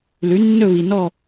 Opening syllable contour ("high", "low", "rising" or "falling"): rising